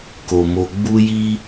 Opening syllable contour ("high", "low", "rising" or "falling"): low